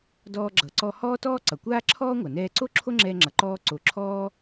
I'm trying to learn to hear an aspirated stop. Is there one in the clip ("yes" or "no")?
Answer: yes